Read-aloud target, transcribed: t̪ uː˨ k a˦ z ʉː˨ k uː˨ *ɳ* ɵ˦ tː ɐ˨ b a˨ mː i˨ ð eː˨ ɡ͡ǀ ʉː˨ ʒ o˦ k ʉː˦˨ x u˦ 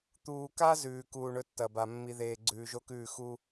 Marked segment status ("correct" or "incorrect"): correct